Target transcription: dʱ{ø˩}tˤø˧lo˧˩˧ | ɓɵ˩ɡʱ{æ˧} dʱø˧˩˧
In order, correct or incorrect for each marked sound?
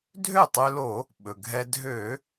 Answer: incorrect, incorrect

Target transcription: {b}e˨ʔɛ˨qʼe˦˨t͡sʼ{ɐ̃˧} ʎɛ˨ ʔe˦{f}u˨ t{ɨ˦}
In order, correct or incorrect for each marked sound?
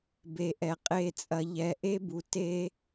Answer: correct, incorrect, incorrect, incorrect

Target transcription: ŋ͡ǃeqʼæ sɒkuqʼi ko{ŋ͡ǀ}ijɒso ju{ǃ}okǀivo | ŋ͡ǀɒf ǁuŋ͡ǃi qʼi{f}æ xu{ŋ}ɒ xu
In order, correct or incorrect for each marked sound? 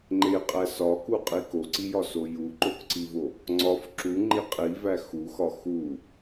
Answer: incorrect, correct, incorrect, incorrect

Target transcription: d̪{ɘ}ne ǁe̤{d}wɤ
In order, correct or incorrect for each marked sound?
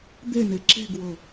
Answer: incorrect, incorrect

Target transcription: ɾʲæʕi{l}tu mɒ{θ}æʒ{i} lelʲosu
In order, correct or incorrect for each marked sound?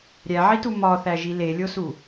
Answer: incorrect, correct, correct

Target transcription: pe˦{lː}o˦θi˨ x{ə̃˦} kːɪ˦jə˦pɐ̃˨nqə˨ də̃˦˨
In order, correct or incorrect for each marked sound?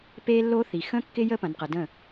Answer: correct, correct

